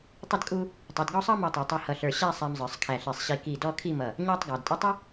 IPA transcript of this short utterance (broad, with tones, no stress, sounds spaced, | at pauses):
tˤ ə˥ d kʼ u˥ | tˤ i˩˧ d ɡ ɔ˥˧ sˤ ɑ˥ m ɔ˧ tˤ ɛ˩˧ tˤ ɛ˧ h ʌ˧ ɬ ə˞˧ ɕ æ˥˧ sˤ æ˧ m zˤ ə˞˩˧ sˤ kʰ æ˧˩ ɬ i˧˩ sˤ ɕ i˧ k i˧˩ d ɔ˥˧ kʰ i˥˧ m ʌ˧˩ | ɲ æ˥ tˤ ɡ ɑ˩˧ d tʼ ɪ˥ tˤ ʌ˥